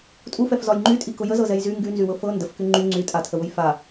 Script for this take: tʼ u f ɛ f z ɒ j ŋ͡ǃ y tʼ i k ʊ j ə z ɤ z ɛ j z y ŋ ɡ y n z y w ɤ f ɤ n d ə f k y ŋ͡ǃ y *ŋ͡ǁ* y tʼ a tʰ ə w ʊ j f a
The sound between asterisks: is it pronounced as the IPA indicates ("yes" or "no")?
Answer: no